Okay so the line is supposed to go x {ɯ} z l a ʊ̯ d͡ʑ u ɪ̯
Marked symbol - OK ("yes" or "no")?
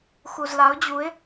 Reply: no